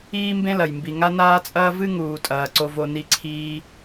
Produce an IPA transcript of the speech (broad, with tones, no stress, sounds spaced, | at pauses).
iː˥ m b ẽ˥ l ɐ˩ j m b i˩ ŋ a˥ n aː˥ t͡sʼ ɐː˥ v ɨ˥ ŋ uː˩ tʼ ɐː˩ ǀ o˩ v o˩ n i˩ ǀʰ iː˩